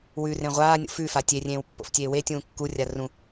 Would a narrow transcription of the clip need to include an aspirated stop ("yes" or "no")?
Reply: no